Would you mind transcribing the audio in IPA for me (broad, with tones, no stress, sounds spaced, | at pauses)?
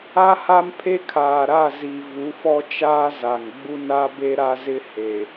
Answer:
a˦ h a˦ m pʰ e˦ kʰ aː˨ ɾ a˦˨ z i˨ v u˨˦ f ɔ˦ t͡ʃ aː˦ z a˨ ŋ ɡ͡b u˦ n a˦ b e˦ ɾ a˦ z ɪ˦ h e˨